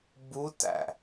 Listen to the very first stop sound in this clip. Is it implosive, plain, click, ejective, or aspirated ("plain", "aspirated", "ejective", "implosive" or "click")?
plain